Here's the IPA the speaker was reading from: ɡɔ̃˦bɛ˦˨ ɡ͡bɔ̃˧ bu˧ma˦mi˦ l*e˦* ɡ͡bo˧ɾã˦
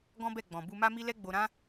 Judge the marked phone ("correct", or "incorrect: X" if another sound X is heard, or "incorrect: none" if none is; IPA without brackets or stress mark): incorrect: ɛ˦